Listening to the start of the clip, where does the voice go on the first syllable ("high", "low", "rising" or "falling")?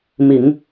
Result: low